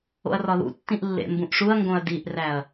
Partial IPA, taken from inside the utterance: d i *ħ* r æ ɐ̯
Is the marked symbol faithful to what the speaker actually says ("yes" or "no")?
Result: no